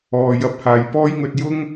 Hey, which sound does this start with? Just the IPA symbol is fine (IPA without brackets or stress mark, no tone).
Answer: ɔː